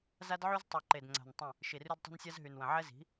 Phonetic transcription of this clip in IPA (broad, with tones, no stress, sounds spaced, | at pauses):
z a˦ d ʕ y˦ z tˤ y˨ ǃ e˨ d ŋ͡ǀ a̤˨ n tˤ ə̃˦˨ | ʃ i˨ r ʉ˦ d tˤ e̤˦ n sʲ a˦ z ɦ y˨ n w ə̃˨ ʕ ɛ˦ z i̤˨˦